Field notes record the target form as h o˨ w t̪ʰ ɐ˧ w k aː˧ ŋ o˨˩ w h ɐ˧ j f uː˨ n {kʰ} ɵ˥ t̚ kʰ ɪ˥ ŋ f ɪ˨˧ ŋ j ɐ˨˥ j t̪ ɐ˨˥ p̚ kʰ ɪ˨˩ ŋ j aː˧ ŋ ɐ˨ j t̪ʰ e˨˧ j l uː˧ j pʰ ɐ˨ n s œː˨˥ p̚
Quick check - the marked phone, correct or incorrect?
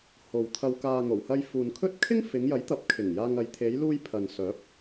correct